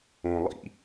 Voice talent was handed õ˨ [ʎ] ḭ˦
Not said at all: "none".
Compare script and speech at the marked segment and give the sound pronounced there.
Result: lˠ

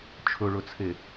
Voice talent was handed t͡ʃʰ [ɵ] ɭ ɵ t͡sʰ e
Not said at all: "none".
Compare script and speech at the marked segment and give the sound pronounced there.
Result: ɵ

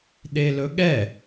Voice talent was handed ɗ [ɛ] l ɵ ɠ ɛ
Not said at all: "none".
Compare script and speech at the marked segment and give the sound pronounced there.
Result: e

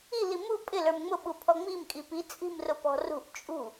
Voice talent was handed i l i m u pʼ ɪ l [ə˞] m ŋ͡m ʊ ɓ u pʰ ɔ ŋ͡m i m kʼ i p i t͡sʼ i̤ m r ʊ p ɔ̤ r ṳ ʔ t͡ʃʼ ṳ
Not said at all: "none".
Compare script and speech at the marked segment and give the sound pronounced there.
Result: ə˞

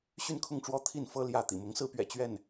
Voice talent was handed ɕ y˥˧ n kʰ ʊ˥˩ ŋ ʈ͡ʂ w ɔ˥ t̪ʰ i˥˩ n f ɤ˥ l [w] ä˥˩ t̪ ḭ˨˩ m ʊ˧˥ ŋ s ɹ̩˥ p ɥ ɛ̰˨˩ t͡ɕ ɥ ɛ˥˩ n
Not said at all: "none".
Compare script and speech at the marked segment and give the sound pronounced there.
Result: j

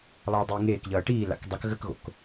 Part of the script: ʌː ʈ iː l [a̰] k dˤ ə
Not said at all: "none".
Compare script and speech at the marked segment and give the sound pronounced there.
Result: a̰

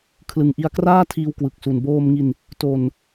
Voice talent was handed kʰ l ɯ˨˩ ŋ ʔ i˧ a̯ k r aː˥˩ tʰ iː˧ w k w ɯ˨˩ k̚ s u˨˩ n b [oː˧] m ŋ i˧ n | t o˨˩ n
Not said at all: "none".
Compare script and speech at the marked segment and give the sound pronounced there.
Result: oː˧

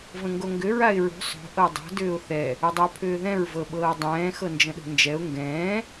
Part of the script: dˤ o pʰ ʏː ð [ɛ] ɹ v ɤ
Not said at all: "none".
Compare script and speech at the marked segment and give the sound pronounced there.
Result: ɛ̃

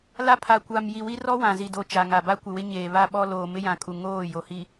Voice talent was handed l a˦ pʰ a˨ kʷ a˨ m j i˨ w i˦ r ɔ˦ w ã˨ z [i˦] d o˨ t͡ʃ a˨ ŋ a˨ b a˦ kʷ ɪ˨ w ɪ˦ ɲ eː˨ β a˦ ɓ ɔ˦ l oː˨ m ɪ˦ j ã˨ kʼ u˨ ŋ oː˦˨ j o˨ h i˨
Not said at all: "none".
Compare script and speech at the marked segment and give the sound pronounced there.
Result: i˨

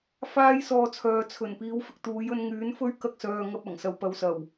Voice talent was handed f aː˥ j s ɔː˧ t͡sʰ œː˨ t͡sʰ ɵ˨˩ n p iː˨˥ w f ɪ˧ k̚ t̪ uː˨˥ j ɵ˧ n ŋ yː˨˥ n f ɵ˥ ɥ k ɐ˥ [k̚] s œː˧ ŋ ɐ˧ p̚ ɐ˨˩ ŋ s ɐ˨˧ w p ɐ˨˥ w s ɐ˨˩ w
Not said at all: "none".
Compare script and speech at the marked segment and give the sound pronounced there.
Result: k̚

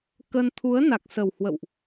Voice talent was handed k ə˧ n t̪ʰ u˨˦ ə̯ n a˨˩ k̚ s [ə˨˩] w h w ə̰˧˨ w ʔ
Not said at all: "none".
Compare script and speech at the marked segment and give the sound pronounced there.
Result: ə˨˩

